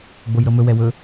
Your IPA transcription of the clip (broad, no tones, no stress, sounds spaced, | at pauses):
ɡ͡b o j ɾ ɤ m ɵ w ɛ w ɵ